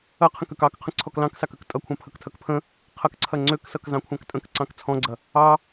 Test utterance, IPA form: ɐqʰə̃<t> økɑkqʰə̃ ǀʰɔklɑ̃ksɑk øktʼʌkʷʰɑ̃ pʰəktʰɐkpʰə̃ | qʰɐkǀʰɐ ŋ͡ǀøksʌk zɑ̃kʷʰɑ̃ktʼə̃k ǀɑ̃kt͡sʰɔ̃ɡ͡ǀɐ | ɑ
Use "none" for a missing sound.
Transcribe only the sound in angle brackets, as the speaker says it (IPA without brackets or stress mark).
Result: k